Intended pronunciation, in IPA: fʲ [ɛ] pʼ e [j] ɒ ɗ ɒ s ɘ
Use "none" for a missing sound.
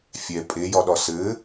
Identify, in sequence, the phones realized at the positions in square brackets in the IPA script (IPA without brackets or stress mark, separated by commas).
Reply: ɛ, j